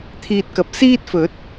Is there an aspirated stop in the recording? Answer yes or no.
yes